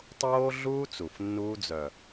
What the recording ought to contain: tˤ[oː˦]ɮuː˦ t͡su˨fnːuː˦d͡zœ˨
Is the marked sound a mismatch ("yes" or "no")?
no